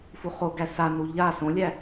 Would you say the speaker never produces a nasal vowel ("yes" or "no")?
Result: no